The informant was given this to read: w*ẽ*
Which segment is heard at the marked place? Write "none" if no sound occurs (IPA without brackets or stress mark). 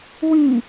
ĩ